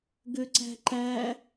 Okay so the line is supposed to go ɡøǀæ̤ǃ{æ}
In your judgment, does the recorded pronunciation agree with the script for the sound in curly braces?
yes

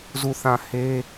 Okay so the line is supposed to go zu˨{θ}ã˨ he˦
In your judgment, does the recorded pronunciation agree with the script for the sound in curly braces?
yes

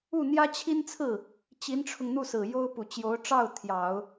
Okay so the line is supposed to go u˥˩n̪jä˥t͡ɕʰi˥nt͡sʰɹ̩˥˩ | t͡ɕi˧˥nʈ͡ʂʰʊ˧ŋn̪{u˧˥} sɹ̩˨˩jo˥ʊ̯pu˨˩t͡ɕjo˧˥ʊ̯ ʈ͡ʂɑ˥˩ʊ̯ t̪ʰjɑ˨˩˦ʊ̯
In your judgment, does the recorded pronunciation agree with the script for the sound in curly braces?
no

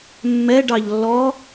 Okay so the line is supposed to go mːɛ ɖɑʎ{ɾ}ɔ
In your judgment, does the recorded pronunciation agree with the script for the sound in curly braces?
no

